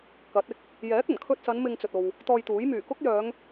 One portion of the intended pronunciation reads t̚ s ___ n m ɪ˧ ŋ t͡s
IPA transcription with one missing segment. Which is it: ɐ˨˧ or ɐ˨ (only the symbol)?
ɐ˨˧